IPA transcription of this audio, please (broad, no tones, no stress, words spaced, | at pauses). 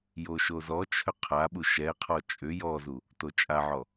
joʃozɔt͡ʃʰʏ qʰaɓu ʃɛqʰɔ t͡ʃʼʏ jɔzu | tot͡ʃʼaʕɔ